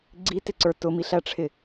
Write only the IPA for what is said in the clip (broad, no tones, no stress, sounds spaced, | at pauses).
ɡ͡ǀ i t ɪ ǀ ə˞ t ʊ m i ɬ æ ʈ͡ʂʰ ɪ